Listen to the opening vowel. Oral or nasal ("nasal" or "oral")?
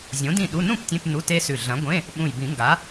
nasal